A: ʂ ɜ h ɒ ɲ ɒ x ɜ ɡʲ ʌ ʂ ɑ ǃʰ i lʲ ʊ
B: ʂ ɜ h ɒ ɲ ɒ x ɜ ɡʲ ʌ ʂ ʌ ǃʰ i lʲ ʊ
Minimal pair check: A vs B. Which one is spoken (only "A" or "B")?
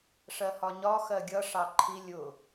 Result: A